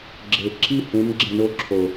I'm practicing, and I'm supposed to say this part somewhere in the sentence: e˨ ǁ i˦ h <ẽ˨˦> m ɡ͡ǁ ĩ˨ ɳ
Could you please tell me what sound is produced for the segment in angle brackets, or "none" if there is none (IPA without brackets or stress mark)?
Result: ẽ˨˦